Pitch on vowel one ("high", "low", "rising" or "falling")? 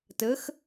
rising